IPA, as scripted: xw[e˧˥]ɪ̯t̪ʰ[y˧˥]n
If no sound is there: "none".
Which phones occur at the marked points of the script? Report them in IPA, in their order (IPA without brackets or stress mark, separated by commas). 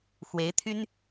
e˧˥, y˥